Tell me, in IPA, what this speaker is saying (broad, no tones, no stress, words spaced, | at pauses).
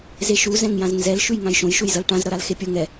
zeʃu zɛ̃ŋjãznzɛl ʃʉjŋãjʃõj ʃujzʌlʈãz ɾʌɾalxepʲʌ ŋɛ